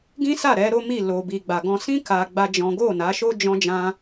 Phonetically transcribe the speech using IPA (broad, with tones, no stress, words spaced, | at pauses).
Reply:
ɡĩ˦sa˦˨ɾɛ˨˦ ɾo˦mi˦˨ lo˧bi˧ɡ͡ba˧ɡɔ̃˦ sĩ˦ ka˦ ɡ͡ba˦d͡ʒɔ̃˦ ɡo˦˨na˨˦ʃo˦ d͡ʒɔ̃˦d͡ʒã˦